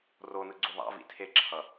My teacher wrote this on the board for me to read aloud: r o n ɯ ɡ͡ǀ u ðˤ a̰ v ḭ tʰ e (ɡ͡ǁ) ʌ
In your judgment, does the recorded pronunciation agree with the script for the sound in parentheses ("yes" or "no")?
no